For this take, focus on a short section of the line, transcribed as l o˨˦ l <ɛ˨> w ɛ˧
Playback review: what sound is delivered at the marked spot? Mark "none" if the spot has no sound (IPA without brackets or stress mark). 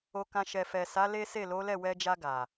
ɛ˦˨